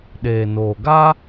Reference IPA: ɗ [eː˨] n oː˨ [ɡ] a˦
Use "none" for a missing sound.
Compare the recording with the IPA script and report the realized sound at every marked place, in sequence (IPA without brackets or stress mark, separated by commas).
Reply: eː˨, ɡ